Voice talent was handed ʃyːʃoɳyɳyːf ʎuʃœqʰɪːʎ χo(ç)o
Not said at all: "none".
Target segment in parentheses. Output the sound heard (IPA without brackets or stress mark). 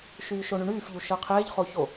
ç